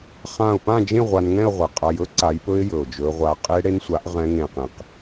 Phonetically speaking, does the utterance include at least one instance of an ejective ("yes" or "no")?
yes